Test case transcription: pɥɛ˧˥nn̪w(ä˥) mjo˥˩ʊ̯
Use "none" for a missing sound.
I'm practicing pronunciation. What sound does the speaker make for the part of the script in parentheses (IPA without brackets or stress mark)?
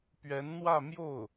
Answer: ä˥˧